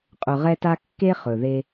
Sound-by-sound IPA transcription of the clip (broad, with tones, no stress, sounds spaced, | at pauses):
qʼ ɵ˨ ʁ ɛ˧ t a˧ kː e˦ χ ɵ˨ ð e˧